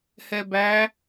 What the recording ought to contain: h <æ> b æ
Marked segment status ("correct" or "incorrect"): incorrect